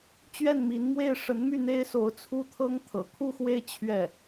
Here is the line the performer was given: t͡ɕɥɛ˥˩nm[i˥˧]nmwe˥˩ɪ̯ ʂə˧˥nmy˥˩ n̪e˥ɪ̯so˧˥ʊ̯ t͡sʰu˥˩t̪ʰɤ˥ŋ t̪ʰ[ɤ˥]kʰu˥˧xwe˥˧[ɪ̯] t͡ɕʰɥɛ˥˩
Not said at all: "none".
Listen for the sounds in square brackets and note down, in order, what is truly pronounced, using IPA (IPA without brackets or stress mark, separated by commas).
i˧˥, ɤ̰˨˩, ɪ̯